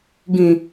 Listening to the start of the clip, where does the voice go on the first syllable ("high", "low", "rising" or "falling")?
low